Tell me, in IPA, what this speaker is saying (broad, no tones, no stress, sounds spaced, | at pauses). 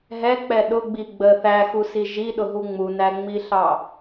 ɦ ɛ k͡p ɛ ɗ ʊ ɡ͡b i ɡ͡b ə θ æ x u s i ʒ i ɗ ʊ ɦ u ŋ͡m u n æ ŋ͡m i ɬ ɑ